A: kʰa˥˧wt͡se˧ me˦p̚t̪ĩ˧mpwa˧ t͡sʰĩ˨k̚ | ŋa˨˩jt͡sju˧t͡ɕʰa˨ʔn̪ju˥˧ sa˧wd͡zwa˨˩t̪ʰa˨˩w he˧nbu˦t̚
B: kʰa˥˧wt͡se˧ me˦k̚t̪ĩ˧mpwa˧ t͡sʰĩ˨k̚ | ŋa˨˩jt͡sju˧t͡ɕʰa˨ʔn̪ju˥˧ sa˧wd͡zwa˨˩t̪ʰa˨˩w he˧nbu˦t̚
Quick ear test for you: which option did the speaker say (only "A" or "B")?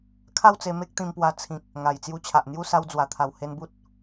B